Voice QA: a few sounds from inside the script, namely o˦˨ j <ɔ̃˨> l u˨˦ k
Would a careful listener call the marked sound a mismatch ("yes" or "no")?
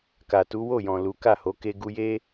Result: no